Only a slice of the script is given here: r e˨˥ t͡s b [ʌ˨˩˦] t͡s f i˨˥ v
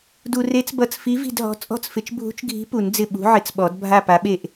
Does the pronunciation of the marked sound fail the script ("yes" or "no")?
no